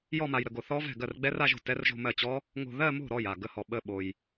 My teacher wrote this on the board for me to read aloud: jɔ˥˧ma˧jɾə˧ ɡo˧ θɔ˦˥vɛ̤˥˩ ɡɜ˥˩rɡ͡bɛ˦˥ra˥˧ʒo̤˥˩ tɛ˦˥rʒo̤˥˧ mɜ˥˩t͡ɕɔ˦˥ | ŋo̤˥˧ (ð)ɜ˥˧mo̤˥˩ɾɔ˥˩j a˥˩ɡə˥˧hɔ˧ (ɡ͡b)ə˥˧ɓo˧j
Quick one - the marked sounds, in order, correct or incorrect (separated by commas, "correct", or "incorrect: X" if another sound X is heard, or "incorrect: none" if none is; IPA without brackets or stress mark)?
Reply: correct, incorrect: ɓ